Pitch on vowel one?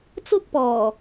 high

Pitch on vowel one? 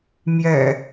low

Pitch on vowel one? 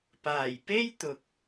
low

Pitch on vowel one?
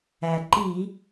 low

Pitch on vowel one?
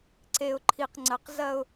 low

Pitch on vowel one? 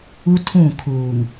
high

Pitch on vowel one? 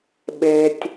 low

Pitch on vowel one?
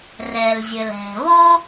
low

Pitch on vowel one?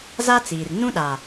high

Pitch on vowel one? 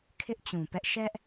high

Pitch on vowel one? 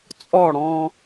falling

